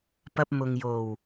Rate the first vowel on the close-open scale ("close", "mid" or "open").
open